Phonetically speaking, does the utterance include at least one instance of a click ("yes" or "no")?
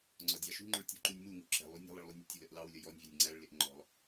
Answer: yes